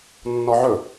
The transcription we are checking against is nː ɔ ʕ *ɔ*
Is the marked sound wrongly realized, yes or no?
yes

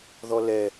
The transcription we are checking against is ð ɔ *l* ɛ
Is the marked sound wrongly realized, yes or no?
no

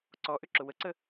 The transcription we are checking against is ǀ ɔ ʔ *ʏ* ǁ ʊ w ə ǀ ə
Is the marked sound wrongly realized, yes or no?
no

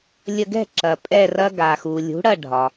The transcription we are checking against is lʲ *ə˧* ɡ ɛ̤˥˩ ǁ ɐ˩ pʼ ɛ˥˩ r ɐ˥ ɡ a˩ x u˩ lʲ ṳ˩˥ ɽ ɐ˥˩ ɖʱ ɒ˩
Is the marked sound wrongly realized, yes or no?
no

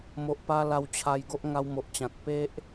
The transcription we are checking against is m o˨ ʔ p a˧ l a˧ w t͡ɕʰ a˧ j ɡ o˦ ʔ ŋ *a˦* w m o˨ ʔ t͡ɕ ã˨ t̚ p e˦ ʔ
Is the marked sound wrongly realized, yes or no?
yes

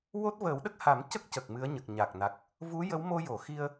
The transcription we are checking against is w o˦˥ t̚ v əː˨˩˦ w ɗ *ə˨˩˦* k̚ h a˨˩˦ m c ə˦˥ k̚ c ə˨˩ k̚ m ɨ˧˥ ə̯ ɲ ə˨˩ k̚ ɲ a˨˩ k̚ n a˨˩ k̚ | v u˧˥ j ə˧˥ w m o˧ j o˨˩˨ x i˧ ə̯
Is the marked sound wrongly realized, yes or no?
yes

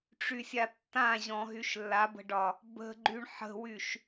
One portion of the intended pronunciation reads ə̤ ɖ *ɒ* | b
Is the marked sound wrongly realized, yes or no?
no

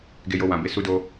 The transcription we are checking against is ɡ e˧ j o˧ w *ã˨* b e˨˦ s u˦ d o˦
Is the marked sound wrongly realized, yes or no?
no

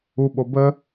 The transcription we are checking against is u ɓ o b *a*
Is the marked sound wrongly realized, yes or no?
yes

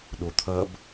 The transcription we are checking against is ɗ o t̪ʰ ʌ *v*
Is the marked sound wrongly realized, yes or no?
yes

